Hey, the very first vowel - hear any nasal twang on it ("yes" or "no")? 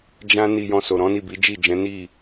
yes